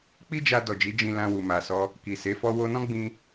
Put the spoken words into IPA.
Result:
k͡p i˦ d͡ʒ a˧ d ɔ˨ d͡ʒ i˨˦ d͡ʒ ĩ˧ l ã˧ w u˨ m a˨ s ɔ˧ | k i˨ s e˨˦ f ɔ˦ w o˧ n ɔ̃˦ ɡ͡b ĩ˧

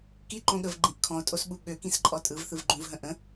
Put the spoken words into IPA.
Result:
k i ǃ õ ɠ ə v ɡ͡ǃ ĩ ʔ kʰ ɔ̃ o̯ tʼ o s ɓ u ɠ ø k ĩ s ǃʼ ɔ tʼ ɯ v θ ɯ v ɡ͡ǃ ũ v ɦ ə̃ ʔ ə̃

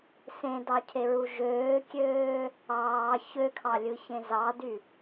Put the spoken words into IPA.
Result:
s ẽ d ɑ cʰ e ɹ u ʒ øː kʲ øː | ɑː ç ø kʰ ɑ lʲ ɯ ç ẽ z ɑ d y

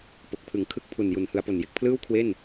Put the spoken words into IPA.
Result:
p o˨˩ k̚ pʰ ɯ˨˩ ŋ kʰ ɯ˦˥ k̚ pʰ u˨˩ n j u˩˦ n h ɯ˩˦ a̯ p o˨˩ n j e˨˩ k̚ pʰ l ɯː˥˩ w kʰ w e˥˩ n

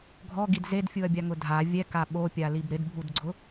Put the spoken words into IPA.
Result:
ɡʱ ɔ ɡ i d z e d fʲ u ɐ̯ bʲ a ŋ ʊ dʱ a vʲ ɛ k a ɓ o pʲ a l i b ɾ ɪ d bʱ u d ɡ͡ǀ ʊ

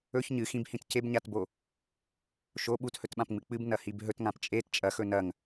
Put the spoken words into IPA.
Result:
ɵ ç ɲ ɨ x ĩ b h ĩ t c e b ɲ a t b o | ʃ o ɓ u t h ɵ t ɓ ã p ŋ͡m ɨ k͡p ɨ b n ɐ h i b ɦ ɵ t ŋ ã p t͡ʃʼ e t t͡ʃʼ ɐ x ɵ n ɐ ŋ

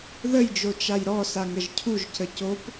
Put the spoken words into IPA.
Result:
ð ə j d͡ʒ o t͡ʃ a j ɾ ɔ s a ŋ ɾ ə ʒ cʰ u ʒ c ə c o p

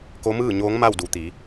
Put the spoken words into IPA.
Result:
k o˧˥ m ɯː˥˨ ɲ oː˧˥ ŋ m a˥˨ w d u˩˧ t̪ iː˩˧

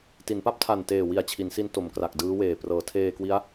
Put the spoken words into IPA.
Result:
t i˩˦ n p a˥˩ p̚ tʰ a˨˩ n t eː˨˩ w i˨˩ a̯ t͡ɕʰ i˩˦ n s i˦˥ n t o˩˦ m k r a˨˩ k̚ d ɯː˦˥ w eː˨˩ p r ɤː˩˦ tʰ eː˧ k w i˦˥ a̯

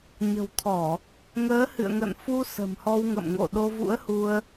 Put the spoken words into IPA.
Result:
ɲ ə̤˨˩ w t̪ʰ ɔ˧˩˨ | ŋ əː˨˦ h ɨ̰˧˨ ə̯ ŋ ə̰˧˨ n f u˧ s ə̤˨˩ m h ɔ˧ w ŋ ə̰˧˨ m ŋ o̰˧˨ ɗ o˧ v ṵ˧˥ ə̯ h u˧ ə̯

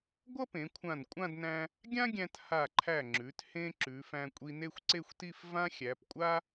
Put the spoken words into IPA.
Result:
ɡʷ ʌ˥ p ẽ˩˧ kʷʰ ã˧˩ n kʷʼ ã˥˧ d n æ̃˧ | ɡʲ ã˥ ɡʲ æ̃˧ t h a˧˩ ǃʰ æ˧˩ ŋ͡ǁ ʉ˩˧ t h ẽ˧ ǁ ʉ˩˧ f æ̃˧ kʷʼ i˧ n e˥˧ xʷ ǀ e˥˧ xʷ t i˥˧ f v ã˥ xʲ æ˩˧ p kʷʼ a˥

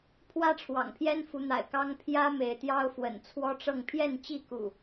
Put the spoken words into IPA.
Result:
pʰ w ä˦ ʈ͡ʂʰ w ɑ̰˨˩ ŋ pʰ j ɛ˦ n f u˨˦ n̪ a̰˨˩ ɪ̯ k ɑ˦ ŋ pʰ j ä˦ m e˨˦ ɪ̯ t̪ j ɑ˦ ʊ̯ f w ə̰˨˩ n t͡sʰ w ɔ˦ ʈ͡ʂ ɤ˥˨ ŋ pʰ j ɛ˥˨ n t͡ɕ i˥˨ k ṵ˨˩

